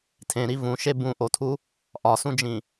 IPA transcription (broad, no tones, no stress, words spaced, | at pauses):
tʰẽɾi vũʃe bũʔotʰu | ʔɒsũd͡ʒĩ